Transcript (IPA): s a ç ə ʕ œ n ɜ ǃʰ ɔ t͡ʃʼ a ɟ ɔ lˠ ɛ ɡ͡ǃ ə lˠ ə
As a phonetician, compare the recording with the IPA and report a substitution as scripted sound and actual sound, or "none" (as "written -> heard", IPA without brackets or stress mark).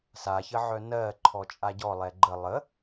none